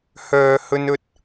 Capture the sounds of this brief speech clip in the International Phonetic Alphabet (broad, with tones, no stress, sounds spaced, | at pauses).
h œː˨ h ɵ˧ n ɵ˧ t̚